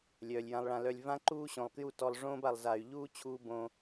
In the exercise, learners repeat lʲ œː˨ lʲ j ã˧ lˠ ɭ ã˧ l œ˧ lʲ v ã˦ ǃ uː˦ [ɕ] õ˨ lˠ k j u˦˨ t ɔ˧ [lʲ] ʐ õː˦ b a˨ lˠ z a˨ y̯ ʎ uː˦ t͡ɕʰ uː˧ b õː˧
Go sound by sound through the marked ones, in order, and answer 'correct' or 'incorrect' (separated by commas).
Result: correct, incorrect